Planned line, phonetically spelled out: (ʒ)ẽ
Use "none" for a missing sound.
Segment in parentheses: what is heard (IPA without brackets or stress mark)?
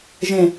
ʒ